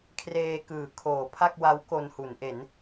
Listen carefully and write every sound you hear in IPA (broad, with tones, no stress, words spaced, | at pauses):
kʰreː˧kɯː˩˦kʰoː˩˦ pʰa˥˩k̚wa˦˥wko˧nhu˩˦n ʔe˩˦n